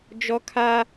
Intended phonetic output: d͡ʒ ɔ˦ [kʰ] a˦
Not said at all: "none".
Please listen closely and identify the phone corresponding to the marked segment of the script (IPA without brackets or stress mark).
kʰ